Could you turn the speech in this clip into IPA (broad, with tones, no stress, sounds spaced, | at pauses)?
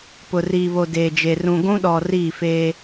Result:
p ʊ˨ r iː˨ β o˨ d eː˨ d͡ʒ e˨ r ũ˨ ɡʷ ũ˦ ɗ ɔ˨ r iː˦˨ f eː˦